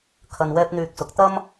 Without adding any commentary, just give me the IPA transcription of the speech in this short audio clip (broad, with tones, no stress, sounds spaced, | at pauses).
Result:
kʰ ɐ˧ n w ɛː˥ p̚ n̪ yː˧ k̚ s ʊ˨˥ k̚ t̪ ɐ˥ m